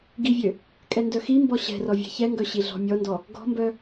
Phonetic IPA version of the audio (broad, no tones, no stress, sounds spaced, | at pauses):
ɡ i vʲ ø | kʼ ɛ n d œ x i m b ɔ ɕ ɛ̤ r ɔ vʲ ɛ̤ ç ɛ ŋ ɡ œ ɕ i ɮ ɔ̤ mʲ ɔ n d ɔ | ɡ ɔ̤ m b œ